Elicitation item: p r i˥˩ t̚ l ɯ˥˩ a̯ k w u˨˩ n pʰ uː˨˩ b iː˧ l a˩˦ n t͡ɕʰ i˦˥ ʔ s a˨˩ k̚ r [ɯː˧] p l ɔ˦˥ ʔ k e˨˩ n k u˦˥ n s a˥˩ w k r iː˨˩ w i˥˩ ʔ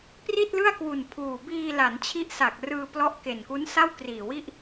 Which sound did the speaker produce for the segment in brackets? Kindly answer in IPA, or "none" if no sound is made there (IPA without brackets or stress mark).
ɯː˧